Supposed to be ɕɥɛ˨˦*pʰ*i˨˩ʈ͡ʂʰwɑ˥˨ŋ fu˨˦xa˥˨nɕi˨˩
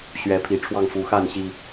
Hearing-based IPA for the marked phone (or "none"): pʰ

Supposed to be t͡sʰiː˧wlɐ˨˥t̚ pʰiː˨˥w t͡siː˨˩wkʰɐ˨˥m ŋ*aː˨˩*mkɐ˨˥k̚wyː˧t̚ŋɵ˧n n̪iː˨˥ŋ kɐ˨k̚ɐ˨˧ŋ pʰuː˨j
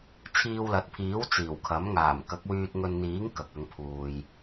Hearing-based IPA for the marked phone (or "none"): aː˨˩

